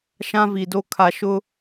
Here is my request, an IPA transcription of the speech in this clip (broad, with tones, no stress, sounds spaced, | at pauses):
ʃ ã˦ v i˨ d o˦ kʰ a˨ ʃ ʊ˦